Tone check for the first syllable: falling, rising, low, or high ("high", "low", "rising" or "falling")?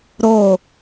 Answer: falling